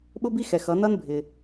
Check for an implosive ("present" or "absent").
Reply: present